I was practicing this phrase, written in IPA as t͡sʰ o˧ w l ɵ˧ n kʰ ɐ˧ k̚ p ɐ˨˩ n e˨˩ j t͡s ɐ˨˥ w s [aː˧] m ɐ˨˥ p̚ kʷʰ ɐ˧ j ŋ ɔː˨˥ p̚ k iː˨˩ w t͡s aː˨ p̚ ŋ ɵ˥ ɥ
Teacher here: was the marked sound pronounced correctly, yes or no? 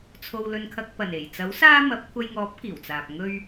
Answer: no